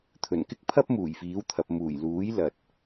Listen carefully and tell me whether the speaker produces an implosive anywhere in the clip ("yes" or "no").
no